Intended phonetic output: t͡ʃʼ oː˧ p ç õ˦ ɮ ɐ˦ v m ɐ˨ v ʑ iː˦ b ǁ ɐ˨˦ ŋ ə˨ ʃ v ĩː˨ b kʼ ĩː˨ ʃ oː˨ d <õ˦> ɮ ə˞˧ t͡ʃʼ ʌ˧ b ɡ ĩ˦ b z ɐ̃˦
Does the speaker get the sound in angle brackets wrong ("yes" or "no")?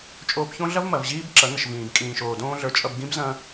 yes